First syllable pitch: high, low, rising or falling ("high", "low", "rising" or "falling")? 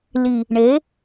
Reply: low